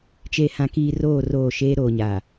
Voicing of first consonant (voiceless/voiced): voiceless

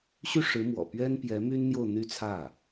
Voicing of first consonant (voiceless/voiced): voiceless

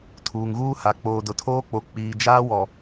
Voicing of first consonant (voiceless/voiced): voiceless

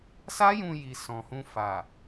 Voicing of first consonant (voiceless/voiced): voiceless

